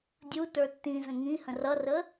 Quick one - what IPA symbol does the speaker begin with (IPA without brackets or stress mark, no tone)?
dʲ